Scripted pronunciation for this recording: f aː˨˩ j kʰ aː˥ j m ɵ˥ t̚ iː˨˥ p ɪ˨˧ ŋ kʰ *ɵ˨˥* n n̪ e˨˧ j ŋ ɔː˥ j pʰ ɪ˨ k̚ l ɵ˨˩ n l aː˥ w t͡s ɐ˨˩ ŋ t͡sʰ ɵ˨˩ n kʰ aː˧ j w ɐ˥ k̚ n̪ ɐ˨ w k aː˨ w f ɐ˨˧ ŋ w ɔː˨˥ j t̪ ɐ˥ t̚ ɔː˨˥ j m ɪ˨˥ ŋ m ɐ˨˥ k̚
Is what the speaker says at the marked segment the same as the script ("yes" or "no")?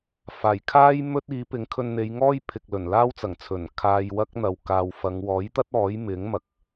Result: no